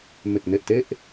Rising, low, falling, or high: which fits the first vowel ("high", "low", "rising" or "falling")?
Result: low